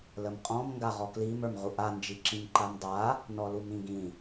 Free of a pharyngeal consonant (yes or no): yes